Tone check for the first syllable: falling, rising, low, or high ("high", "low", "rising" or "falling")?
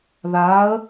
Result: rising